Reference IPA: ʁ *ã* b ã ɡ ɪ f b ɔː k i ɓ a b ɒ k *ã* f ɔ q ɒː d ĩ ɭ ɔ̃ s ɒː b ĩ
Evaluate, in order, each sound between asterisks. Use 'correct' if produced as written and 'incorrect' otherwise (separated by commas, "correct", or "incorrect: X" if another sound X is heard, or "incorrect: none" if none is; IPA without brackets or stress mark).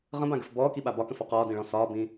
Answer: incorrect: ə̃, incorrect: ə̃